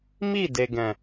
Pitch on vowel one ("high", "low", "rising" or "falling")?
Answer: falling